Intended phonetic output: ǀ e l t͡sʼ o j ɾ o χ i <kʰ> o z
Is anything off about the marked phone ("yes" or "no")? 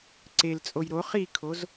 no